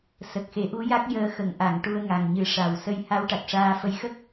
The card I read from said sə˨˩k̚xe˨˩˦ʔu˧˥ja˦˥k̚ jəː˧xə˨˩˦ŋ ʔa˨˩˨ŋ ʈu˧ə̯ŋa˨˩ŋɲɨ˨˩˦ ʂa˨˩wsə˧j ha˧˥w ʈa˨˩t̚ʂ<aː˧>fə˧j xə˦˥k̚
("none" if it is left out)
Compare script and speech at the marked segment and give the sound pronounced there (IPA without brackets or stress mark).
aː˧